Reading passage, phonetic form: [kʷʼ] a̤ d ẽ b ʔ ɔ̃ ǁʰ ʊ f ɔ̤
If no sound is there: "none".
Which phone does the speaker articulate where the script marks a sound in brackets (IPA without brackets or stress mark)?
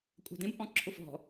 kʷʼ